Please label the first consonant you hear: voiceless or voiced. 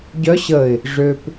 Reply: voiced